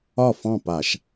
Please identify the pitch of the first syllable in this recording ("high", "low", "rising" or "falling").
falling